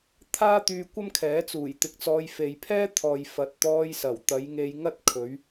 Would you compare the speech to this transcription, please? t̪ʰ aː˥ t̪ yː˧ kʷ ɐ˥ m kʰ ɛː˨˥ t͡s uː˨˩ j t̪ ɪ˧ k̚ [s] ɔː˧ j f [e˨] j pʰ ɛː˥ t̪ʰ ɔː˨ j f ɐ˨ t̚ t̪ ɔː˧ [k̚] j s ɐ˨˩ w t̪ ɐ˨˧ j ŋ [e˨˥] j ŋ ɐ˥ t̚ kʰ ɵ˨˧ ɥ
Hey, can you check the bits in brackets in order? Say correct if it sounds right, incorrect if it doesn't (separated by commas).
incorrect, correct, incorrect, incorrect